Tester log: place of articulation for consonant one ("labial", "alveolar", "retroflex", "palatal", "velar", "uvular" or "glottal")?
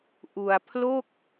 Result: glottal